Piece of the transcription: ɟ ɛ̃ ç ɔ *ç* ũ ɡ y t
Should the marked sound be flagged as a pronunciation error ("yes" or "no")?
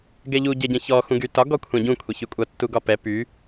yes